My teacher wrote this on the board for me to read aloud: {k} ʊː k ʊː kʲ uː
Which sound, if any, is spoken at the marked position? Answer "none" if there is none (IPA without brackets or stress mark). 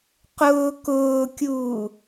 q